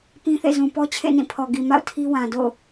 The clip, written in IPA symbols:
pĩ˦θḛ˦˨ zũ˨pɔ˦t͡ɕʰḛ˦˨ nĩ˦˨pʰɔ˨ ɡi˨ ma̰˦˨ʊ̯ tʰi˦wã˨ do̰˦˨ʊ̯

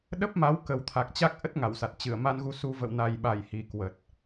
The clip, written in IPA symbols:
ɗə˦˥p̚ma˨˦w kə˨˩wt̪ʰa˨˩k̚ t͡ɕa˦˥k̚ʔə˦˥t̚ ŋa˧˩wsa˨˩t̚ t͡ɕɨ˧˩ə̯ma˧nɣu˧su˧ və̰˧˨wna˨˩jɓa˧˩j hi˨˩ kwə˨˩t̚

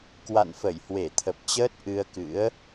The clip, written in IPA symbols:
kwa̰˧˨nfə˧˩jhwe˧˩t̪ʰə˨˩p̚ t͡ɕəː˦˥t̚ʔɨ˧ə̯kɨ̰˧˥ə̯

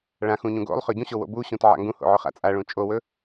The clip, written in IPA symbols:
ɭãxũ ɲũɡo̰lˠχɵ ɟũɕo wo̰buɕũt ʕa̰ŋɡũho̰ ʕɵχa̰t͡sʼaɭũ t͡ʃʼowɵ

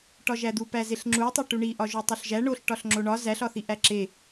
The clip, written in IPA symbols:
ʈɒʒæd̪u pæzeɬŋ͡ǁu tˤoʈuɳi ʔɒʒutˤoɬʒæ ɳoɬ ʈɒɬŋ͡ǁoɳɒ zæɬ ɒθiʔæǁe

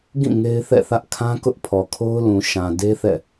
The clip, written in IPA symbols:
ɡĩ˦˨ ŋe˦ɪ̯θɛ̰˦˨θä˦ʔ kʰã˦ kʊ˦ʔpʰɔ˨kʰo˦ʊ̯lũ˨ ʃã˨ de˦ θɛ̰˦˨

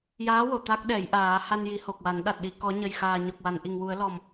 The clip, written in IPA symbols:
jaː˧˥wo˨˩˨ t̪a˦˥k̚ɗɛ˨˩˦jʔaː˨˩˦ ha˧nji˨˩˦ho˨˩k̚wa˨˩˦n ɗa˨˩t̚ɗi˨˩ kɔ˨˩˦ɲə˨˩jxaː˨˩ ɲɔ˨˩k̚wa˨˩˨nʔi˨˩ŋwu˨˩˦ə̯ lɔ˨˩m

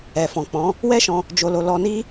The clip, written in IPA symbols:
ɛ˨fɔ̃˨ k͡pɔ̃˨˦ | wɛ˦ʃɔ̃˧ | d͡ʒo˧lo˧ lɔ˧ni˦

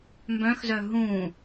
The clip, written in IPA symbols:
mbœ̃xzœ ɦũ

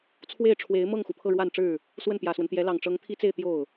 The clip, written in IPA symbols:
t͡sʰwe˥˩ɪ̯ʈ͡ʂʰwe˧˥ɪ̯ mɤ˥˩ŋxu˩ pʰɤ˥˧ɻwa˥˧nʈ͡ʂɻ̩˥˩ | swə˥˩npjä˨˩swə˦nt̪jɛ˧˥ lɑ˨˩ŋʈ͡ʂɤ˧˥ŋt̪ʰi˥t͡se˥˧ɪ̯ t̪jo˥˩ʊ̯

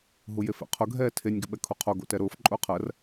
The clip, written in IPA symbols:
ɦujefɛ̰qʰʊ ɡʱɛːtʰenʲ ɡʏɓɛkʰuqʰo ɡo̰tɛɾʊːf ǃʼʊːqʰɜr

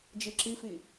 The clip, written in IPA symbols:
d͡ʒiǁifi

